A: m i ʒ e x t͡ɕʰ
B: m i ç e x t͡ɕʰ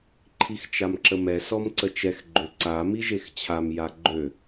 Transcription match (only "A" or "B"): A